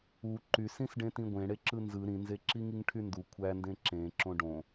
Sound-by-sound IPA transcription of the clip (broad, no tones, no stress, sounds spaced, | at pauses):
u ǃ y s ĩ s ɖ ẽ t ĩ ɡʷ ẽ ɽ e ǁ ɯ n z ɯ ɾ ĩ n z e ǁ i ŋ i ŋ ʈʰ y n d u kʷʰ æ n d ẽ ǁ ẽ ǁ õ ɖ õ